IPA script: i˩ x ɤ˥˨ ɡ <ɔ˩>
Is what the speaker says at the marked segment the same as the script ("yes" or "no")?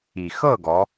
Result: no